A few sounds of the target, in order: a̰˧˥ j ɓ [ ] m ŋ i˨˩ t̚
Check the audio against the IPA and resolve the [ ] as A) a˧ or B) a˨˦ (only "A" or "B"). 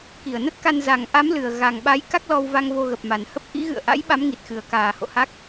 B